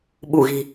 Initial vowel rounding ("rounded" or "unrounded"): rounded